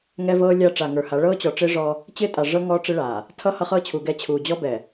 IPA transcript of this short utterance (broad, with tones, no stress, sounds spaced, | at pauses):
ŋ ɛ˦ v ɤː˦ lʲ a˦ ʈ͡ʂ a˨ ŋ ə˞˨ h a˨˦ ɭ ɤː˦ t͡ɕ ɔ˨ ʈ͡ʂ ɪː˦ ʐ ɔ˦ | t͡ɕ ɪː˦ tʼ a˨ ʐ ɤ˦ ŋ ɔː˦ ʈ͡ʂ ɪ˦ ɭ aː˨ | tʰ ʌ˦ h ʌ˦ χ ɤː˦ t͡ɕʰ u˨ ɡ ɛ˦˨ t͡ɕʰ uː˨ d͡ʑ ɔ˦ b ɛ˨